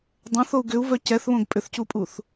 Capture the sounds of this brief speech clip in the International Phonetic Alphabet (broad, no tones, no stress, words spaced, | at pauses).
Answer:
dˤɛ̃θou̯ ɡʏu̯vœ cɛθβõɡ pʼʏθcupʼuθ